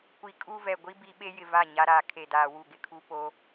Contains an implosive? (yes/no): yes